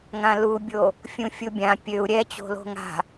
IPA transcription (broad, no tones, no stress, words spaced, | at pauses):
ŋãlubʲo | fʲũfʲubʲã pʲøu̯ ɾʲɛt͡ɕo̤ lo̤ŋa̤